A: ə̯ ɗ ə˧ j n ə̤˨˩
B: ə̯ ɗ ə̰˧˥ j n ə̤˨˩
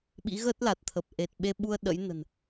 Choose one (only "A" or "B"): B